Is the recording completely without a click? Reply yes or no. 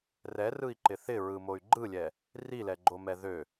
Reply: no